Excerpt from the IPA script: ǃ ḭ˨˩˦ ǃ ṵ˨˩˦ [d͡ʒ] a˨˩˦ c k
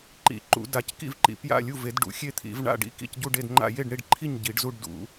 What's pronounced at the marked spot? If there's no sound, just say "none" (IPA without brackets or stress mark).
d